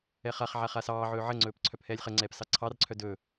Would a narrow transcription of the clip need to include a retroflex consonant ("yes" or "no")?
no